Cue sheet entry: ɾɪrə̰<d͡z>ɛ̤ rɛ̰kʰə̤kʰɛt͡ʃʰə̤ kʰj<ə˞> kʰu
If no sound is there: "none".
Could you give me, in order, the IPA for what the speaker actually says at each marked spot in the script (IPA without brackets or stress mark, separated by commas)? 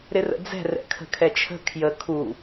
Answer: d͡z, ə